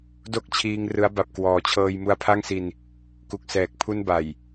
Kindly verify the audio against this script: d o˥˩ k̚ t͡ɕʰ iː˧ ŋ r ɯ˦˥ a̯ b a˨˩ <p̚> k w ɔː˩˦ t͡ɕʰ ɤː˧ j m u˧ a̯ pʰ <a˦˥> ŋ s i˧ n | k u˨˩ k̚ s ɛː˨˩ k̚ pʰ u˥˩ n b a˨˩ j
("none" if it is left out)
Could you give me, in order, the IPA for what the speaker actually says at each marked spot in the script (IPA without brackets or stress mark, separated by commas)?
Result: p̚, a˥˩